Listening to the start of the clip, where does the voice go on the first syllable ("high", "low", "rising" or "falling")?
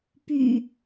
low